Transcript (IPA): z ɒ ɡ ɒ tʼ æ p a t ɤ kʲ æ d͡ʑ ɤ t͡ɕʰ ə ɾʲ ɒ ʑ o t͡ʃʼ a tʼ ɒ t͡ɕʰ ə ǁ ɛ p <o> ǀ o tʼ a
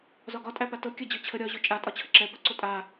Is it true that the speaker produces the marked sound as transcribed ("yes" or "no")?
no